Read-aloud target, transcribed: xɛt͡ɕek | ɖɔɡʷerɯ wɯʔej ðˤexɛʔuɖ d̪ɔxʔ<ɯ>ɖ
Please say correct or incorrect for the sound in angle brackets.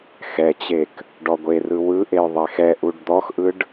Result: correct